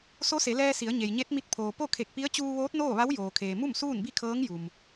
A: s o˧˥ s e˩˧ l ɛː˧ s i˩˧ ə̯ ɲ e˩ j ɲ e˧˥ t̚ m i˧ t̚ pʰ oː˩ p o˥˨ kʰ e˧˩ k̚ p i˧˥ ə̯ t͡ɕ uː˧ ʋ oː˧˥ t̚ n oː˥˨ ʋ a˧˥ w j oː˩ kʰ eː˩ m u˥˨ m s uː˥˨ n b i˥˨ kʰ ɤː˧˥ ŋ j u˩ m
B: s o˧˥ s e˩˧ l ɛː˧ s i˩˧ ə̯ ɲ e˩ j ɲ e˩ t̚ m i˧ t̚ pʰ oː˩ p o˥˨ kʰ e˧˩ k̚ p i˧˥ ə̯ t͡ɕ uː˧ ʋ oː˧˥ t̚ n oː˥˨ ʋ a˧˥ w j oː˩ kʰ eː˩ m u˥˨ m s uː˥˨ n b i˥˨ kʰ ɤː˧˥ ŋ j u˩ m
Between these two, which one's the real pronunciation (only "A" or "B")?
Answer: A